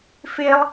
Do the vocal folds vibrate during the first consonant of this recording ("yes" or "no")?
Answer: no